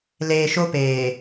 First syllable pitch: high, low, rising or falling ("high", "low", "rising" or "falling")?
low